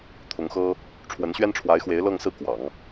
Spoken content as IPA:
t̪ʰʊ˧˥ŋxɤ˥ | ʈ͡ʂʰwə˧˥nɕɥɛ˥nʈ͡ʂʰwa˧˥ɪ̯xwe˧˥ɪ̯ lɤ˥˧ŋsɹ̩˥˩ kwɑ̰˨˩˦ŋ

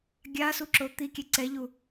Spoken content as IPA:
ɡʲa suǁot̪ikʲɛ ǀɛʎu

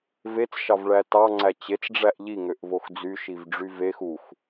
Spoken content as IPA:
vet͡sʃɑvɭæ tɑŋ͡ǀæ t͡ɕet͡sɖ͡ʐæʔ ʎiŋøʔvox d͡zyʃivɖ͡ʐy vex ux

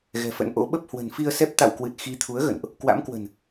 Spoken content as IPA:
ɣɛ̤˨˩fə̰˧˥nʔo̰˧˥ ɓə˦˥p̚hwə̤˨˩nfi˧ə̯sɛ˦˥p̚ t̪a̰˧˨wkwɨ˨˩t̚ xi˨˦t̪ʰu˨˦ə̯ ɣə̰˧˨nʔ | kwa̰˧˥mkwə̤˨˩n

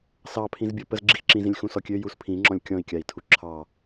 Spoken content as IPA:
sɑpʰĩz bʲɔpəz ɡ͡ǁixǁĩzĩlʲ xũsɔkʲø juspʰĩŋ͡ǁɔ̃lʲ kʲɔ̃i̯kʲai̯ tʰuǁʰɑ

